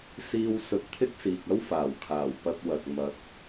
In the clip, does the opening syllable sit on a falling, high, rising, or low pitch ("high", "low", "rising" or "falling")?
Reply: high